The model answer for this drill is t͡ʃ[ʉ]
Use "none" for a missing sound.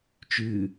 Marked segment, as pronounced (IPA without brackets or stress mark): ʉ